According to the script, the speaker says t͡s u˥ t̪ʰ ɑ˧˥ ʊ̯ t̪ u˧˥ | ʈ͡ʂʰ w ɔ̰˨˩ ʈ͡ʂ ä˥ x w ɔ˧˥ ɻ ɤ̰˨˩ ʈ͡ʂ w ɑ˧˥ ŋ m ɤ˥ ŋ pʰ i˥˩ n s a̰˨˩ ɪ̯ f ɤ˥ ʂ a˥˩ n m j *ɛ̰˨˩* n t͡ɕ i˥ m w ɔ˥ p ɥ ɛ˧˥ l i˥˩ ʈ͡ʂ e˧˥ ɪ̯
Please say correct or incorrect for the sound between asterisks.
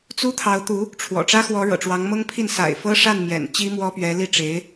correct